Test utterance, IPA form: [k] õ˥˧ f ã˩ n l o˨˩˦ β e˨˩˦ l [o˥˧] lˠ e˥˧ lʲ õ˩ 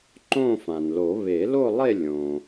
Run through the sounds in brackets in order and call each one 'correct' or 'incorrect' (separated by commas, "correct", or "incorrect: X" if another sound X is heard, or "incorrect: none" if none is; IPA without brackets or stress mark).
incorrect: ǃ, correct